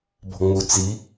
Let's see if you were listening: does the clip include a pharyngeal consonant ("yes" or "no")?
no